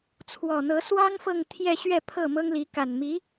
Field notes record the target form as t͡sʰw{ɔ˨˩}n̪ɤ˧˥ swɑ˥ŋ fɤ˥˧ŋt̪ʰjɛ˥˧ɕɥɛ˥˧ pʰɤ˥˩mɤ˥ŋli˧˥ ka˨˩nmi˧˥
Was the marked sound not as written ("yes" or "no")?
no